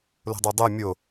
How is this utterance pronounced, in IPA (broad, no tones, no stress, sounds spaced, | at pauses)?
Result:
l o̤ dˤ o dˤ o mʲ o